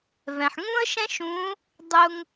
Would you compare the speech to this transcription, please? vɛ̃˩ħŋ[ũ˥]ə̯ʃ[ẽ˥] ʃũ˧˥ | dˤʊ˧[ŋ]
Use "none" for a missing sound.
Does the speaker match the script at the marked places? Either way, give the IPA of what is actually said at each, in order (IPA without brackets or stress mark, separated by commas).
ũ˥, ɛ̃˥, ŋ